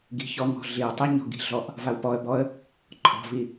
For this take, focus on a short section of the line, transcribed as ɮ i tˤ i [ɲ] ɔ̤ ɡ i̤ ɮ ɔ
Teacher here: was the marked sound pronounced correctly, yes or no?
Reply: yes